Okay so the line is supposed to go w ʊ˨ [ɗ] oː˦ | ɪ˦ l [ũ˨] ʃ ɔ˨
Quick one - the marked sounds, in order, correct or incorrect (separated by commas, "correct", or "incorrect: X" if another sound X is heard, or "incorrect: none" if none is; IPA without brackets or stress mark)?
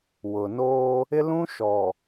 incorrect: n, incorrect: ũ˦